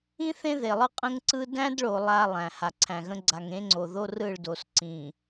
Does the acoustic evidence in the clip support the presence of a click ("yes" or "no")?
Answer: yes